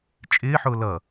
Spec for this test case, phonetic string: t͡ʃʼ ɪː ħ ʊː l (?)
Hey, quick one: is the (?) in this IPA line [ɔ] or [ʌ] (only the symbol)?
ʌ